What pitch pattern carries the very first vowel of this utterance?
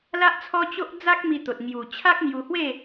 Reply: high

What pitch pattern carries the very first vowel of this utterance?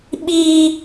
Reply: high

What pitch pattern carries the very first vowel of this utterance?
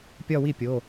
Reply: falling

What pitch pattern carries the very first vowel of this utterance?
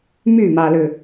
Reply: falling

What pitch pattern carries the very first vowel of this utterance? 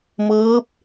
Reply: rising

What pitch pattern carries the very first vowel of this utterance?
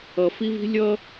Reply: low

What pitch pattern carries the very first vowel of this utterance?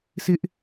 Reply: high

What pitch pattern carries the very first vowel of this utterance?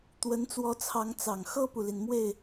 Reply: rising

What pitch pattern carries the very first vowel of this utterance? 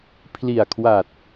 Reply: low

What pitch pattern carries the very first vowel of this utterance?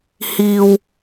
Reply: low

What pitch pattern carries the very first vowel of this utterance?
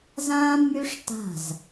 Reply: high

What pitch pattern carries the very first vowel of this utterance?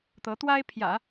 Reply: rising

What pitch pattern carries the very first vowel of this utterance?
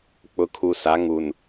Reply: low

